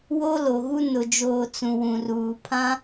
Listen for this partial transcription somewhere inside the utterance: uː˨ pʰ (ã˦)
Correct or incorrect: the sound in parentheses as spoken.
correct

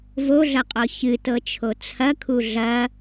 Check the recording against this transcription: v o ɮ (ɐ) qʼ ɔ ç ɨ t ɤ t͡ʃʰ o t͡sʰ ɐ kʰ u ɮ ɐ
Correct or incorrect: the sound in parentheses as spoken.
correct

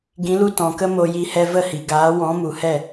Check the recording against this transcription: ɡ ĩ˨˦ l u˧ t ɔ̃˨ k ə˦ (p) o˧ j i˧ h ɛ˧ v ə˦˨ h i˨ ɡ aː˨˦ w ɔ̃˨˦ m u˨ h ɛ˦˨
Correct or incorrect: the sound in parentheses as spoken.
incorrect: m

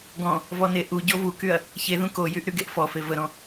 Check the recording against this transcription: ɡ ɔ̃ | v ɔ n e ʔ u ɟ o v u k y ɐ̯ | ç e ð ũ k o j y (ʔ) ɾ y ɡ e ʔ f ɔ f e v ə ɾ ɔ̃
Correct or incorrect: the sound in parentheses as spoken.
correct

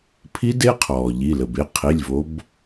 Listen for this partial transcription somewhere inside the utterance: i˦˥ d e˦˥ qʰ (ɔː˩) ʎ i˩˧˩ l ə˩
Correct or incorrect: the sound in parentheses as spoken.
correct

